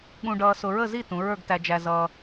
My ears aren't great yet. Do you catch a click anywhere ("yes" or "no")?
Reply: no